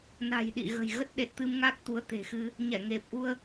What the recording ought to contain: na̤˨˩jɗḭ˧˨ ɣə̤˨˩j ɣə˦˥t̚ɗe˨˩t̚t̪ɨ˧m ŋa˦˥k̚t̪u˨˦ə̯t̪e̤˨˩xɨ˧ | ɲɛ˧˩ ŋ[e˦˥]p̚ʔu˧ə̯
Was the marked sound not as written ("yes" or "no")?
yes